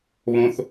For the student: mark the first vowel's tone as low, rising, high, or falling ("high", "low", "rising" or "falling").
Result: high